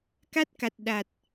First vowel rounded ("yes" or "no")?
no